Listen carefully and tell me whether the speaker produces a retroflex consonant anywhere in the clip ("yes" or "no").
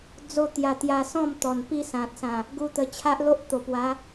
no